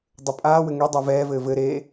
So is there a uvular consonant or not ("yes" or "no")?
no